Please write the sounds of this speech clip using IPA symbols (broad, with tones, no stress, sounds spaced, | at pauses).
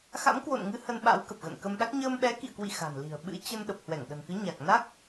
x a̰˧˥ m k w o̰˧˨ n ŋ ɨ˨˦ h ə˧ n ɓ a̰˧˥ w k ə˨˩ p̚ ɣ ə̰˧˨ n k ə˧ m ɗ a˦˥ k̚ ɲ əː˧ m ɓ ɛ˨˦ k ḭ˧˨ ə̯ k w ḭ˧˨ x a̤˨˩ n l i̤˨˩ ə̯ ɓ ɨ̰˧˥ t͡ɕ ə˧ n ɗ ə˨˩ p̚ h w ɛ˧˩ ŋ ɗ ə̤˨˩ n k ɨ˨˦ ɲ a˨˩ k̚ n a˦˥ k̚